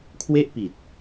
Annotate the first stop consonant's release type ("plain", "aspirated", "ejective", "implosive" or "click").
aspirated